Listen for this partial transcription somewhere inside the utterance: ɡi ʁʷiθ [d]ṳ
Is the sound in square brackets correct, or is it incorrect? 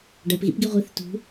incorrect